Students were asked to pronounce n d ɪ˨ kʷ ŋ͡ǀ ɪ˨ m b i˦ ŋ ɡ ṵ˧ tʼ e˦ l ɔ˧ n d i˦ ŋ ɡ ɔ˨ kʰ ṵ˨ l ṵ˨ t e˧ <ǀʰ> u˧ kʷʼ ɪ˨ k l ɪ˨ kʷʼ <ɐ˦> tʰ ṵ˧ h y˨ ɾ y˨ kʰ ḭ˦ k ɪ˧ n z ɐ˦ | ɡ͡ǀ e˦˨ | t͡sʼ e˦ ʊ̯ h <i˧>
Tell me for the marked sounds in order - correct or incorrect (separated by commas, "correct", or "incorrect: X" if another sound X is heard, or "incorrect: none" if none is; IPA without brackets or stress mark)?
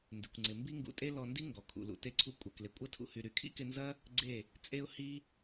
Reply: correct, correct, incorrect: i˦